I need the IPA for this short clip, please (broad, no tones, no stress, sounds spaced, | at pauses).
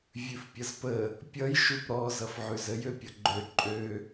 vʲ ʉ f pʲ ʌ z p ə | pʲ ʌ j ʃ u p ɾ ɔ z ʌ f ʕ ʉ z ə j ø pʲ ʌ ɡ͡ǃ ø ǃʼ ø